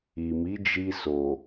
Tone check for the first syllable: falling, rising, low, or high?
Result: low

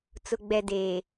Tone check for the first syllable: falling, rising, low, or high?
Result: low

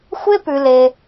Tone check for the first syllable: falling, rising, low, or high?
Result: high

